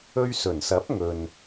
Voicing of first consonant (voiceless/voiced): voiced